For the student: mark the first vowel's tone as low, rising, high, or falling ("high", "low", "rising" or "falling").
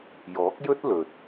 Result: rising